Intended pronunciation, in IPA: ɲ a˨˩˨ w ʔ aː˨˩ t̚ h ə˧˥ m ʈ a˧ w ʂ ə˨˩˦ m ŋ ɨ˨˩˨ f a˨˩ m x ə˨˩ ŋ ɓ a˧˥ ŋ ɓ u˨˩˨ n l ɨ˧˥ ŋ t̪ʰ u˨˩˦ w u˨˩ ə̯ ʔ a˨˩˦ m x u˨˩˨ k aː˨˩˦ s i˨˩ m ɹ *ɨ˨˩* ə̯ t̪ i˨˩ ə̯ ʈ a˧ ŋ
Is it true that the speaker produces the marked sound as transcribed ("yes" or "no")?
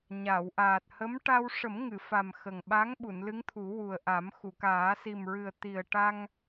yes